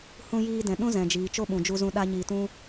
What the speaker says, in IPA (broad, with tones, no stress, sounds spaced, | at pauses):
h ũ˧ j iː˧ d ɛ̃˨ ɗ ũ˦ z ɛ̃˨ d͡ʒ iː˨ t͡ʃ o˦ ɓ ũ˨ d͡ʒ u˧ z ũ˧ ɗ a˦ ɲ iː˧ t ũ˦